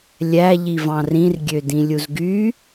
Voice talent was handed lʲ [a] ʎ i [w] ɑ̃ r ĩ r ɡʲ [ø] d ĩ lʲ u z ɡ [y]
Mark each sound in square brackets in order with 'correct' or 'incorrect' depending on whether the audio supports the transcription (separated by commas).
incorrect, incorrect, correct, correct